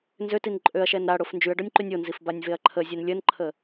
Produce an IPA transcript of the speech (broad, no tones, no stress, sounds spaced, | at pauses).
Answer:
n z ø t i n ǃʼ ø ɐ̯ ʃ ɛ n ɾ a ɽ o f n d͡ʒ y ɐ̯ ɖ ɔ nʲ ǃ y nʲ o n z i f b a nʲ v e ɐ̯ ǃʰ ə zʲ ɛ n lʲ ə n ǃʰ ə